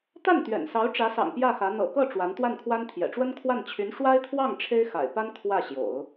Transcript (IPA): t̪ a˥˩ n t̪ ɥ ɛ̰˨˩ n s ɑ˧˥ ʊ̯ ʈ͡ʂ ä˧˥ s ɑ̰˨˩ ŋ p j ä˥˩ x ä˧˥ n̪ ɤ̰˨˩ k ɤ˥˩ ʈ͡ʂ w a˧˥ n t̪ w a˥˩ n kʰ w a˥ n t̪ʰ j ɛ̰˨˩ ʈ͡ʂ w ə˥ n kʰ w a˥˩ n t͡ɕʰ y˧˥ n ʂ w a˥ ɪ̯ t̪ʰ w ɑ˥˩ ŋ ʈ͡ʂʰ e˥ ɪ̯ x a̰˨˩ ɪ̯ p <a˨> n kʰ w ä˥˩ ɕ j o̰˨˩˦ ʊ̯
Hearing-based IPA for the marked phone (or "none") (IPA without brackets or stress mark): a˥